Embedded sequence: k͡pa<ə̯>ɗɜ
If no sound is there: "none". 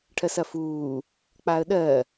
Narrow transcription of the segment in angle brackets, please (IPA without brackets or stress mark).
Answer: ə̯